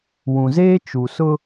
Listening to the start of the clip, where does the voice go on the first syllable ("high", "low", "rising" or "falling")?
low